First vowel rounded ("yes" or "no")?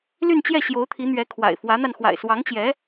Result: yes